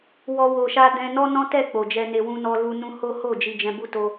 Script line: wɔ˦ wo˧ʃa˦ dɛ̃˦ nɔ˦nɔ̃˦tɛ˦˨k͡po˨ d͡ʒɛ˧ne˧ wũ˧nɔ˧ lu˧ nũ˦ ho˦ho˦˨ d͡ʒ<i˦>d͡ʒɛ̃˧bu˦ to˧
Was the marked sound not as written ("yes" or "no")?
yes